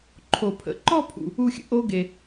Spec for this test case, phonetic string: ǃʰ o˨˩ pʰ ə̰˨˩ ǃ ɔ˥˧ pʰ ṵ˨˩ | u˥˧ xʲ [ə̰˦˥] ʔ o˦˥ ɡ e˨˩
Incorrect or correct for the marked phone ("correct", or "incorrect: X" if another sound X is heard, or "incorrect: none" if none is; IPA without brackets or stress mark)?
correct